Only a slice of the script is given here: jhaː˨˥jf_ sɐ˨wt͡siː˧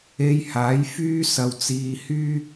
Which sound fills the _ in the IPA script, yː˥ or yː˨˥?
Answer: yː˥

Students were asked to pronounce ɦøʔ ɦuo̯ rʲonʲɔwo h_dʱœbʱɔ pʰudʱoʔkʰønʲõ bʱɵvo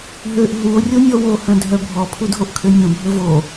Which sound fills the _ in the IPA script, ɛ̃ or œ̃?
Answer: œ̃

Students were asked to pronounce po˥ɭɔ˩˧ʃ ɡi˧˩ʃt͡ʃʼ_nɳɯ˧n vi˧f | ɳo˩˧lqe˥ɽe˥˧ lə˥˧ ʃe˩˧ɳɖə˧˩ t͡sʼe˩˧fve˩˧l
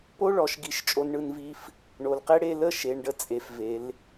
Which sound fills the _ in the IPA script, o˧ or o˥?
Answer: o˧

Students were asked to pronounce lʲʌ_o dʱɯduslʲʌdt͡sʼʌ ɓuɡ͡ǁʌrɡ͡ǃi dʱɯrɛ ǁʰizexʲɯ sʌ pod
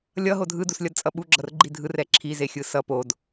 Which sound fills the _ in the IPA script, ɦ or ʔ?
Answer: ɦ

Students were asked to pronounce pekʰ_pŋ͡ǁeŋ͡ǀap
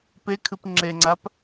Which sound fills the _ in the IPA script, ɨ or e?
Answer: ɨ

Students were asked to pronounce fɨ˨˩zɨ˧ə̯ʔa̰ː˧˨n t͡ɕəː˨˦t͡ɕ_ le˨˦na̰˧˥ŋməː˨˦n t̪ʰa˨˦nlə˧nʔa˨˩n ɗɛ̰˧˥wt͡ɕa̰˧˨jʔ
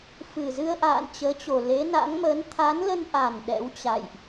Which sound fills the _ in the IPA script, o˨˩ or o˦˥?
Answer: o˨˩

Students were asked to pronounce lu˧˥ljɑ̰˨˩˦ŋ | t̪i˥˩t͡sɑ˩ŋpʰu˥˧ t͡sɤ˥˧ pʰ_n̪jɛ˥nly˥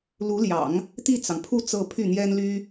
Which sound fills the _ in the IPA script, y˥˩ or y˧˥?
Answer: y˥˩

